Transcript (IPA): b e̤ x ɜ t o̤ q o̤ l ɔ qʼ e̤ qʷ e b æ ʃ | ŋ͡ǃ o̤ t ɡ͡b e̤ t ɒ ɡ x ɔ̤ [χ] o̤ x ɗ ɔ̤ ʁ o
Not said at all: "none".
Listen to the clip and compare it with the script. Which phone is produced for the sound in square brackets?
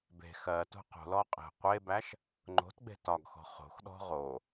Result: χ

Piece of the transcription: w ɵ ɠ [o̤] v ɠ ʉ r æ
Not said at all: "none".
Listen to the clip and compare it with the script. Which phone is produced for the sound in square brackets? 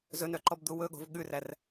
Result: o̤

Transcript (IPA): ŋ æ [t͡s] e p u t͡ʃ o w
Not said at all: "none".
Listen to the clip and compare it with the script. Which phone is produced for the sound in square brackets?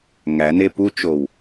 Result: n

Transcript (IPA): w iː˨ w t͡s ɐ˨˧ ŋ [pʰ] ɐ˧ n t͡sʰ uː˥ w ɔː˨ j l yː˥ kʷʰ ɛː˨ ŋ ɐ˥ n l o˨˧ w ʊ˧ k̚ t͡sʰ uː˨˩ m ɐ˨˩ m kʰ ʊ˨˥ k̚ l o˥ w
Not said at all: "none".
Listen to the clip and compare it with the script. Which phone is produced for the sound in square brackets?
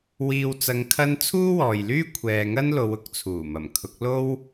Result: kʰ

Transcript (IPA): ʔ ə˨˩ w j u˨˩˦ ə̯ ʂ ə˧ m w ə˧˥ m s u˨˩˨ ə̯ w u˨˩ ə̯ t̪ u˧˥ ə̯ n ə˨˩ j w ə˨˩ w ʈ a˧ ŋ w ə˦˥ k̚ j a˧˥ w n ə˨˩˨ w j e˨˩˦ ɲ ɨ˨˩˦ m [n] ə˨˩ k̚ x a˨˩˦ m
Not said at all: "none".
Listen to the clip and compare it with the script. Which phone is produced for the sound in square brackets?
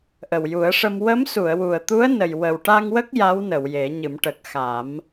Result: ʈ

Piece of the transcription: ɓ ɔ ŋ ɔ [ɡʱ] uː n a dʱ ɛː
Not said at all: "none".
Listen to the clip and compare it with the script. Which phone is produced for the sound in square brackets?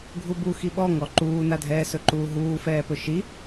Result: ǃ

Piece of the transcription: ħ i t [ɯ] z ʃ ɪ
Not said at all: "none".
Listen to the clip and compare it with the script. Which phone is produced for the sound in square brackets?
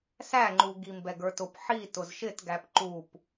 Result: ʊ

